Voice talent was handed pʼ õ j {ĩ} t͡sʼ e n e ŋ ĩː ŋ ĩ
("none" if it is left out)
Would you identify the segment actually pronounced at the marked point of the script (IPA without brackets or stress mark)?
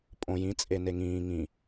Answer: ĩ